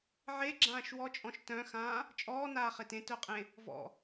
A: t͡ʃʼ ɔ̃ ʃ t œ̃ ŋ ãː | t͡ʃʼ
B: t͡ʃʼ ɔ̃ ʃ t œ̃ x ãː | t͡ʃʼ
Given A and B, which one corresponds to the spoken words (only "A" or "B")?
B